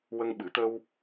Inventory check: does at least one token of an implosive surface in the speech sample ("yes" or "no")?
yes